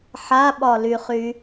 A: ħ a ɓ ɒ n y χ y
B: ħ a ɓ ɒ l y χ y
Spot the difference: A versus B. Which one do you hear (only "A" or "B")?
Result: B